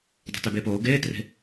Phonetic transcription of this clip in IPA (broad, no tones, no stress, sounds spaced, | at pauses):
dˤ o̤ t ø b eː p oː ɡ eː t r e̤